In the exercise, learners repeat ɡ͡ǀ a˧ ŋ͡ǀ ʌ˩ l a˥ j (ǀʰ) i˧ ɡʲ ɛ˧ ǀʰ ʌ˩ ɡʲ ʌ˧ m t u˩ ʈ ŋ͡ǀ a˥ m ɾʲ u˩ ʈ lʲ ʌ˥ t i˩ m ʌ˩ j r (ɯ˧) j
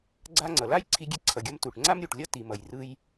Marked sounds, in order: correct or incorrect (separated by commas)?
correct, correct